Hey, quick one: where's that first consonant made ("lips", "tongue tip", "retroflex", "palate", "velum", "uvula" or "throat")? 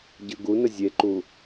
palate